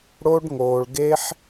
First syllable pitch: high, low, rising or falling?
high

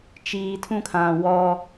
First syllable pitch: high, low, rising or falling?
low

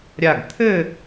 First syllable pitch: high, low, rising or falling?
falling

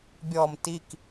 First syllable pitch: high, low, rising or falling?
low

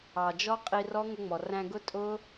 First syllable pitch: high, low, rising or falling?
low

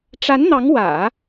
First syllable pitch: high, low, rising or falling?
rising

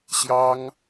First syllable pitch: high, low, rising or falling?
high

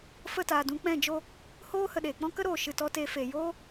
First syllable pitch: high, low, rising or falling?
falling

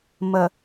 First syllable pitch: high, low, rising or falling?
low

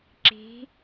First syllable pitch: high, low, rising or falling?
rising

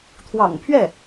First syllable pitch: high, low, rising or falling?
low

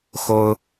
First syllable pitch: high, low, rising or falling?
high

